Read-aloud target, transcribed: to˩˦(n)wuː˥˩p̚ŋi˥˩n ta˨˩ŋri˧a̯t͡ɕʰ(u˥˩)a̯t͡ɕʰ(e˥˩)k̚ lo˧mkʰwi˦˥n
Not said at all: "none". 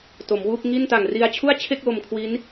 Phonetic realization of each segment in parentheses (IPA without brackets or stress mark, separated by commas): m, u˥˩, e˥˩